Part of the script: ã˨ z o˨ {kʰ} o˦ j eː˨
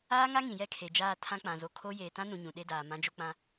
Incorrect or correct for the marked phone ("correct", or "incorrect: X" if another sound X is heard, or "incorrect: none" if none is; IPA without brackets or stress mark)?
correct